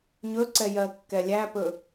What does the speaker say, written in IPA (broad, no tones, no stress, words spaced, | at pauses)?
ɲɵǀɛjɜ kːɛlʲæpɵ